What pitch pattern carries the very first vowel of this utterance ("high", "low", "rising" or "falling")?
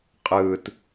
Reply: low